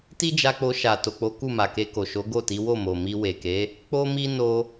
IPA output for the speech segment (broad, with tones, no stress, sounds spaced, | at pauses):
t i˦ d͡ʒ a˧ k͡p o˧ ʃ a˨ t o˨ k͡p o˨˦ k u˦˨ m a˨ k e˧ k o˨ ʃ o˨˦ ɡ o˦˨ t i˨˦ w o˦˨ m o˨ m i˧ w e˨ k e˨˦ | k͡p o˦ m i˦ n o˧